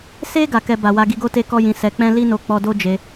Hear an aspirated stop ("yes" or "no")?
no